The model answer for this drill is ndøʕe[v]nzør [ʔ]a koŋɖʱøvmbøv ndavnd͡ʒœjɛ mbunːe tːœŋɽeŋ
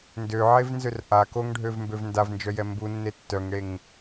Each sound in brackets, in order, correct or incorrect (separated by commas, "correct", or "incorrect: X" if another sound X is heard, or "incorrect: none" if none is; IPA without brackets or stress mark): correct, correct